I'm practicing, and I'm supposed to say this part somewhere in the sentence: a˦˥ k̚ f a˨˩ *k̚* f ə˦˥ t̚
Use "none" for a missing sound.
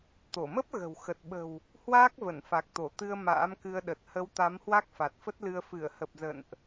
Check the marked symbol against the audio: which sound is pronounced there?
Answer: t̚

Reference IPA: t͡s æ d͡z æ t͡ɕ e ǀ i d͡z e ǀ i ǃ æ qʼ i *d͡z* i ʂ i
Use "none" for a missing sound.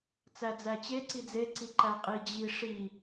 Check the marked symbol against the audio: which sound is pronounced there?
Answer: d͡ʑ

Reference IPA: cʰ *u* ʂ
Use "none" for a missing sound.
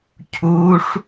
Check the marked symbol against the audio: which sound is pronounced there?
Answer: u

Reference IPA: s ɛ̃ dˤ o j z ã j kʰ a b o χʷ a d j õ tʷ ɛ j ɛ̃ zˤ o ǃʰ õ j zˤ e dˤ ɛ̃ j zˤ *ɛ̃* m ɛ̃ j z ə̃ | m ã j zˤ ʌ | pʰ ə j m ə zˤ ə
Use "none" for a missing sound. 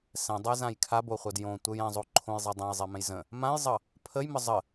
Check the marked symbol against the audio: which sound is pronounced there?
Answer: ɛ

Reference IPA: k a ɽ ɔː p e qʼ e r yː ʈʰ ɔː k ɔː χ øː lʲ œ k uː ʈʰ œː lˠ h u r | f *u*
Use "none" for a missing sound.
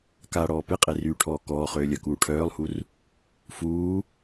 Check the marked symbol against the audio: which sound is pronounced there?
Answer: uː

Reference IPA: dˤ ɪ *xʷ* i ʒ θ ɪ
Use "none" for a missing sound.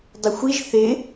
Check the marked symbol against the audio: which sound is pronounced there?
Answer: xʷ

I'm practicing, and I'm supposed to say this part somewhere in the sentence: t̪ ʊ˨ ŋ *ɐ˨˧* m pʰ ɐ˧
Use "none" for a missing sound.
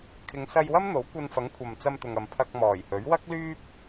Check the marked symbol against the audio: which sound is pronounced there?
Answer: ɐ˨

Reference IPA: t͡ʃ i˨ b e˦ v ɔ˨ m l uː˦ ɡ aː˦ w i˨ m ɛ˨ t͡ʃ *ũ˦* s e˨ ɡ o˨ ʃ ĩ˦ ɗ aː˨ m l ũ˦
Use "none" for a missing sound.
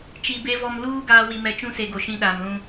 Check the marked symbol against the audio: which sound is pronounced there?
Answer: ũ˦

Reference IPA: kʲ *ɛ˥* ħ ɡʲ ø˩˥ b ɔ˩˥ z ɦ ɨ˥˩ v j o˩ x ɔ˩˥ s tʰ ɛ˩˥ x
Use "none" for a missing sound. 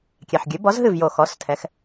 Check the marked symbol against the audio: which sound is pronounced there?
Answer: ɛ˩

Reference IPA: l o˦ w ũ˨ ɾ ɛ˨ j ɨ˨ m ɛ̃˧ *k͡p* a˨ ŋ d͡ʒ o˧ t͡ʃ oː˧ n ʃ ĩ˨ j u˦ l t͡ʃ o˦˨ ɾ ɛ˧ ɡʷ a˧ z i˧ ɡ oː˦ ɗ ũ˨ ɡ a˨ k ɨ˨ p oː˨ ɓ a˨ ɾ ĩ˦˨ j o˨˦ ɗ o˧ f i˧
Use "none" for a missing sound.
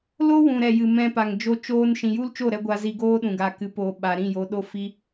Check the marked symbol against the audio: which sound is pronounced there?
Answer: p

